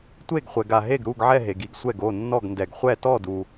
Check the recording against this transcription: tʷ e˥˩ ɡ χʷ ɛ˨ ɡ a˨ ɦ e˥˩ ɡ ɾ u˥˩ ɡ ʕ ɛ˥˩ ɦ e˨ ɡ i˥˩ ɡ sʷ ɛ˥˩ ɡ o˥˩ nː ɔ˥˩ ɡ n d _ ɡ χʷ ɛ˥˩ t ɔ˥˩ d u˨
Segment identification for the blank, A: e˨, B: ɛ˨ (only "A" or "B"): B